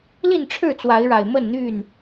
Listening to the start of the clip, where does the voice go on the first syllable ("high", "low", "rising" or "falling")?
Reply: falling